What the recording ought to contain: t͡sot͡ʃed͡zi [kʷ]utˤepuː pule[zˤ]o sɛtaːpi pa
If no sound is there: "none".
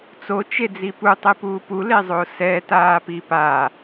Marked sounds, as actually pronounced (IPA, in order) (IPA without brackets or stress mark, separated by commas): p, zˤ